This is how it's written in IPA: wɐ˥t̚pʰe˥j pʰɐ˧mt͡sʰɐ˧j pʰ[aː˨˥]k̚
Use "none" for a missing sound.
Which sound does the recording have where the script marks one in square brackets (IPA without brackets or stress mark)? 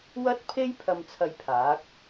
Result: aː˨˥